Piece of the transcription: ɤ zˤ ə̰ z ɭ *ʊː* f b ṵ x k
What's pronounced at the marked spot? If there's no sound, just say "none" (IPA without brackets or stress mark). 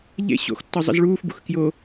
uː